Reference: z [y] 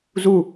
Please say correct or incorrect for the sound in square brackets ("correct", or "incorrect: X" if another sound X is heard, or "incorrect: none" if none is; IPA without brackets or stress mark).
incorrect: u